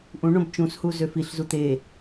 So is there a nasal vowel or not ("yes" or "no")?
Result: yes